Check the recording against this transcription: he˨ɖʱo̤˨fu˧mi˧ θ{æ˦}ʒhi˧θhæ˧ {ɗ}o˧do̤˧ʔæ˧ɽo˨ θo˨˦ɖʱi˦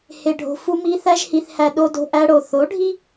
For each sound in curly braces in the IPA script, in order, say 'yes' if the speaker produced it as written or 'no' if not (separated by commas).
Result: yes, yes